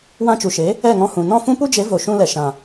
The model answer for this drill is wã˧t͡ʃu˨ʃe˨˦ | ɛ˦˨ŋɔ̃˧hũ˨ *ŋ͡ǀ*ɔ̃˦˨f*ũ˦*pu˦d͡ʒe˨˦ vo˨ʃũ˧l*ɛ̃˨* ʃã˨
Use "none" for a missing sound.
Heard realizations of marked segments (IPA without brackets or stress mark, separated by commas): n, ũ˦, ɛ˨